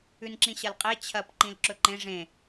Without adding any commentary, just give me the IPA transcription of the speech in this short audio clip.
ʉ n ǁ ĩ ɕ ɐ l qʼ e t͡ɕʰ ɐ p ǃ ĩ l ǁ ɵ ǃ ẽ ʐ ẽ

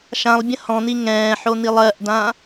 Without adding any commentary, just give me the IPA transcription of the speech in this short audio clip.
ʃ ã lˠ bʲ ə̃ h ɔ̃ n̪ i ŋ ɛ̃ː ħ o n̪ i lˠ ɜ ʔ d ã

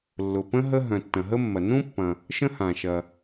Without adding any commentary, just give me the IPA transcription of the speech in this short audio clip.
lː ʊ˩ p ə̃˥ ɦ ə˥ ɦ œ̃˩ tː ɐ̃˩ ɦ ə˥ mː ɐ˩ n ũ˥ pː ɐ̃˩ | ʃ ə̃˥ h ã˩ ʃ ɐ˩

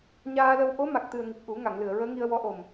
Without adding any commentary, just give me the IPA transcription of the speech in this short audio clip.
ɲ aː˧ l ə˧ w ʔ o˧˥ m a˨˩ k̚ t̪ ɨ˨˩ ə̯ ŋ i˨˩ k̚ ʔ u˨˩˦ ŋ a˨˩˨ ŋ l ɨ˨˩˨ ə̯ ɹ əː˧˥ ŋ i˧ ə̯ w ɔ˧˥ ʔ o˨˩ m

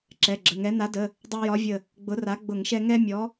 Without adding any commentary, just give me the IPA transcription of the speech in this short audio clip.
ǁ ɛ˩˧˩ ɡ͡ǁ ə˩˧˩ ŋ ɛ˨˥ n a˨˥ d ə˩˧˩ | dˤ a˦ j ɒ˨˥ vʲ ə˧˩ | ɡ͡b ʊ˨˥ r a˨˥ ɡ͡b ʊ˧˩˧ ŋ ʃ ɛ˦ ŋ ɛ˦ mʲ ɔ˨˥

